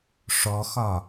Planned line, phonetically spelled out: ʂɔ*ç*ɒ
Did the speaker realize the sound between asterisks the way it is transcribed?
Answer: no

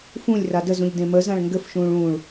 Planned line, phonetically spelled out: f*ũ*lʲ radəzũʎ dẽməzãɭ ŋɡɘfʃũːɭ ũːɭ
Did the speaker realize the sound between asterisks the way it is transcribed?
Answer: yes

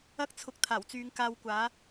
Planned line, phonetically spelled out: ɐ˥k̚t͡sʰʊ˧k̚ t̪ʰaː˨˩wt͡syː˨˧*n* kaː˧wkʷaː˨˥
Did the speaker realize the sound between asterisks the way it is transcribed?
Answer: no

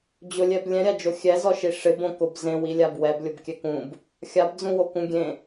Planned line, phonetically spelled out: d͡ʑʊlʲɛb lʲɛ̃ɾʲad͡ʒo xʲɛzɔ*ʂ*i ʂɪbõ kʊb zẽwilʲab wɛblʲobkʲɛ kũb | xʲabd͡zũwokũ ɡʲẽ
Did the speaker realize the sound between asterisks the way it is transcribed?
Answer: no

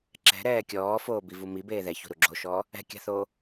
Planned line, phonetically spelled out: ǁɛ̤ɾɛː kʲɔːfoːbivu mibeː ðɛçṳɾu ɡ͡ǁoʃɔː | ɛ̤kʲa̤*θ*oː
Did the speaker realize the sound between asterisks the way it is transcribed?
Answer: yes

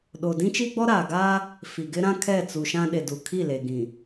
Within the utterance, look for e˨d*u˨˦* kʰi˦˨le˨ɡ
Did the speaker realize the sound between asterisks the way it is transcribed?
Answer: no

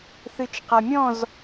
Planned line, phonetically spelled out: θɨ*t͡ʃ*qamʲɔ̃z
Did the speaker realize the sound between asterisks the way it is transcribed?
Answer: yes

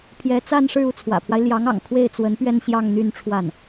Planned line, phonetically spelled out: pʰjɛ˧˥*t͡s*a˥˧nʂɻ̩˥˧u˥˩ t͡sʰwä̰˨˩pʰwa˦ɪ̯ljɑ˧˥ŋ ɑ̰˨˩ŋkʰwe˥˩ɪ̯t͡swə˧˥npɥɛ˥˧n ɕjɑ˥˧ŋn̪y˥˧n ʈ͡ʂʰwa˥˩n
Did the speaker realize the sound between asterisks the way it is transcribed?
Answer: yes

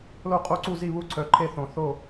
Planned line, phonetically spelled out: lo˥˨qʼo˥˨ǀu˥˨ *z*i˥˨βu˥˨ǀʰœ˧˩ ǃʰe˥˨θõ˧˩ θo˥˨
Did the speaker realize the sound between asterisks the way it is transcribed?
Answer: yes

